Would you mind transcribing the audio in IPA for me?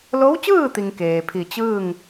l o˧˥ w t͡ɕ ɯː˥˨ t̪ i˩ ŋ k eː˩ pʰ i˧˩ t͡ɕ ɯː˥˨ ŋ

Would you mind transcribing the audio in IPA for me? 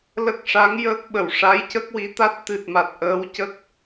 l ə˦˥ k̚ ʂ a˧˥ ŋ j əː˦˥ k̚ ɓ ə˨˩˨ w ʂ a˧˥ j c ə˦˥ k̚ w i˧˥ t̪ a˦˥ t̚ t̪ ɨ˨˩ t̚ m a˨˩ t̚ ʔ əː˧˥ w c ə˦˥ k̚

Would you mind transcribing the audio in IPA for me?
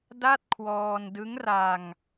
d a˥˩ t̚ kʰ w ɔː˧ n d ɯ˦˥ ŋ r a˧ ŋ

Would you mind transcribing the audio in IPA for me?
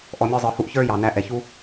ʔ ɔ˧ mʲ ə˞˦ zˤ ə˞˧ h u˦ ʔ ç ə˞˦ j ɑ˨ n æ˨˦ ʔ ɛ˨ ç u˦

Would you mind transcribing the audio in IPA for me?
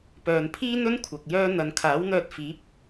p œː˨ n pʰ iː˥ n̪ ɵ˥ n kʷʰ ɐ˧ k̚ j œː˧ n̪ ɐ˨ n kʰ aː˨˥ w n̪ œː˧ t̚ f iː˨˥ p̚

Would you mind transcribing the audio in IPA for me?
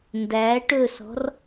n d æ ʈ ɵ s ɔ̤ r

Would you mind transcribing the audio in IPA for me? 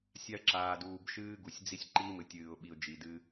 sʲ a˦ ə̯ ǁ aː˨ d uː˨ b ʃ ɨː˦ ɡ u˨ sʲ d͡z i˦ sʲ ǃ iː˦ m ɨ˨ tʲ ɨː˨ ʊ̯ ɓ i˨ ʊ̯ d͡ʒ i˨ d ɨ˦

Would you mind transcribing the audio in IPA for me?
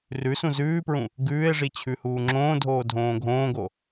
r ʉ s ũ z ʉː p ɹ ũ | ɡ ʉː e̯ ʐ i t͡ɕʰ ʉ h uː ŋ͡ǁ õː dʱ oː dʱ õː ɡʱ õː ɡ o

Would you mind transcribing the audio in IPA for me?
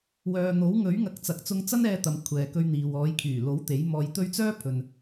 w œː˨ n̪ o˨˥ w ŋ ɵ˨˥ ɥ ŋ ɐ˨˥ k̚ t͡s ɐ˨ k̚ t͡s ʊ˧ ŋ t͡s ɐ˥ n ɛː˧ t̪ ɐ˨ m kʷʰ ɛː˨ k ɵ˧ ɥ n̪ iː˨ w ɔː˨˧ j kʰ yː˨˩ l o˨˥ w t̪ e˨˥ j m ɔː˧ j t̪ ɵ˥ ɥ t͡s œː˥ pʰ ɵ˨ n

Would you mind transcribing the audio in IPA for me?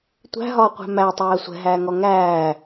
tʷ æ̤ ɦ ɒː qʷ æ̤ m æ tˤ æː sʷ ɛ̤ ɦ æː ŋ ɔ ŋ æː

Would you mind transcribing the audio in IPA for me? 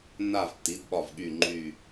nː a˥˨ v tː i˩˥ d ɓ ɒ˧˩ v ɠ y˧˩ ŋ͡ǃ y˧˩

